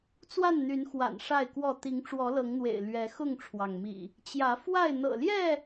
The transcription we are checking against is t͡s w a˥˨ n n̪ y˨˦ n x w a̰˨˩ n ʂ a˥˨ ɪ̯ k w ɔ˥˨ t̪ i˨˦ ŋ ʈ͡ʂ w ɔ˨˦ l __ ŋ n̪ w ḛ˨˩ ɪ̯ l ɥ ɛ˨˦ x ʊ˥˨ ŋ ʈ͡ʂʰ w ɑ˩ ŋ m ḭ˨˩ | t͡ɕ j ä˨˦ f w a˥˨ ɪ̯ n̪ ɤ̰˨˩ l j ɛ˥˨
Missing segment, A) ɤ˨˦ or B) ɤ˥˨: A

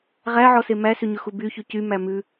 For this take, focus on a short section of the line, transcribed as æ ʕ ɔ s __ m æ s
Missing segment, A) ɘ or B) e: B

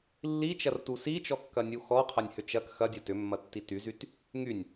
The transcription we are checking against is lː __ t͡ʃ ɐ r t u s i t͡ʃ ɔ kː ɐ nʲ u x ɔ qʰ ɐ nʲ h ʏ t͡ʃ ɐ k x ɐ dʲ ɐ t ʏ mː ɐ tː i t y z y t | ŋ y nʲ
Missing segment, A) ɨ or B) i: B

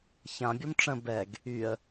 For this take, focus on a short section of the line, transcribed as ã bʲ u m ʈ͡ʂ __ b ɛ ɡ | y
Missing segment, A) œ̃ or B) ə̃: B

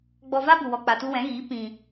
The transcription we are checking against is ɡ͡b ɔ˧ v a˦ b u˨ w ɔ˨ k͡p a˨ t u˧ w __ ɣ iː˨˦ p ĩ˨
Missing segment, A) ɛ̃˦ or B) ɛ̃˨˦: B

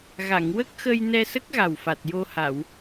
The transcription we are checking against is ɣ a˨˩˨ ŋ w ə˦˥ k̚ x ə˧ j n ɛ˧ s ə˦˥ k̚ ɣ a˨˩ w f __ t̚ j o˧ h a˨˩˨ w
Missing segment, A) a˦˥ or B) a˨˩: B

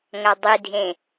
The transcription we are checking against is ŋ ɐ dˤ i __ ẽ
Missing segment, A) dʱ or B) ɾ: A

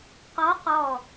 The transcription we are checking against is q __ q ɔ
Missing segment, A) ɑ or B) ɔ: B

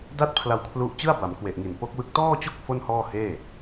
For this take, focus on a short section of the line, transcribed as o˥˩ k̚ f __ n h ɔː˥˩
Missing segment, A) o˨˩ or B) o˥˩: B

